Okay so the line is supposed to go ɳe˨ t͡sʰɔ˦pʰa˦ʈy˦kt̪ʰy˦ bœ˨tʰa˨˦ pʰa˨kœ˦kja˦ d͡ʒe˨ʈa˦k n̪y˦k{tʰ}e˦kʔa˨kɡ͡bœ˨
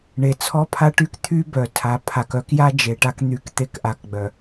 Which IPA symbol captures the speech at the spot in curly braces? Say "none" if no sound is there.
t̪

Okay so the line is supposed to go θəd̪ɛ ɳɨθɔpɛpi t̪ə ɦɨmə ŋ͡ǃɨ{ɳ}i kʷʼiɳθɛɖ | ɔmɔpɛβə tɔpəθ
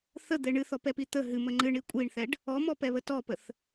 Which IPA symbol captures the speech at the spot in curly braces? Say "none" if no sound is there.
ɳ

